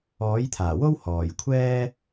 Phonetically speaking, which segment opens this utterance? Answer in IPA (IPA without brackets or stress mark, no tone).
ɔː